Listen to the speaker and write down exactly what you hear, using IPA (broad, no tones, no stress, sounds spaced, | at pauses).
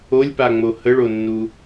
o lʲ p a ŋ͡m o h ə ɭ o nː u